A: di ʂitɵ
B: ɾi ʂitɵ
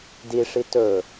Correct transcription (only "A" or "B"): A